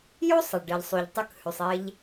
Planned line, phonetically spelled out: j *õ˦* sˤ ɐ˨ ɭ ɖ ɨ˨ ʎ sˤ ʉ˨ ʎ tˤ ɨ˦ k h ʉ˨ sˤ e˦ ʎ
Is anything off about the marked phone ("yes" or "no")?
yes